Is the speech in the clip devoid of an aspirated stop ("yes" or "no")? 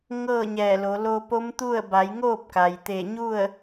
yes